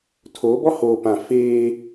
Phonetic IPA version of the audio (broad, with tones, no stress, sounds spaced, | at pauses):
tʰ oː˨˦ b ɔ˦ h oː˨ p ã˨ f eː˦